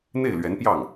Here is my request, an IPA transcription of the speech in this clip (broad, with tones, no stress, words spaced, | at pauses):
n̪e˥˩ɪ̯lɥɛ˧˥npjɑ˥˩ŋ